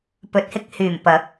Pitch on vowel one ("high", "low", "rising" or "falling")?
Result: low